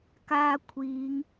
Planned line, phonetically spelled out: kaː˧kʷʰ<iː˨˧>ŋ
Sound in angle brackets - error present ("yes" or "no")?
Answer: no